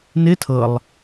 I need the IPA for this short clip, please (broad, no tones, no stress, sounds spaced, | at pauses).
n ɪ tʰ ɤ lˠ